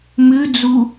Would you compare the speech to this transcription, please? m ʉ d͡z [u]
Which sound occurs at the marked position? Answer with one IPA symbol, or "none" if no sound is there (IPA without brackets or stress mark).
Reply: u